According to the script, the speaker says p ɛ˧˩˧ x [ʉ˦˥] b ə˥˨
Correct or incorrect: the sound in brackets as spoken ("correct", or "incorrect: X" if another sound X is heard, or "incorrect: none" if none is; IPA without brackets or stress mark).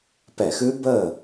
correct